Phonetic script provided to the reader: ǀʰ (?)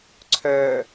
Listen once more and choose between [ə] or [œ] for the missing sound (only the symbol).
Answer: œ